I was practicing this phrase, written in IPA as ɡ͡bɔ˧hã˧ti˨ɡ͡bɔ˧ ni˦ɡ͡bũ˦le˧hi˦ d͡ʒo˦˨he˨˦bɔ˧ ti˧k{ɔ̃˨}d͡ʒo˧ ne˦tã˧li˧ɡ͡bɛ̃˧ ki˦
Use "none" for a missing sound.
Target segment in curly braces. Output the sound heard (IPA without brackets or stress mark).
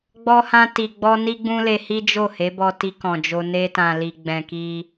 ɔ̃˨